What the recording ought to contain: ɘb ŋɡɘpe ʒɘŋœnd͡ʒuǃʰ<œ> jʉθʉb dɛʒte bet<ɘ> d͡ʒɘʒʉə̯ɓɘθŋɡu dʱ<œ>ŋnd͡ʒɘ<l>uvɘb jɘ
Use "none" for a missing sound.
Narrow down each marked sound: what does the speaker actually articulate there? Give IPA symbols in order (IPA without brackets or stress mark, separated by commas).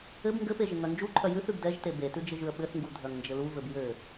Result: œ, ʉ, œ, l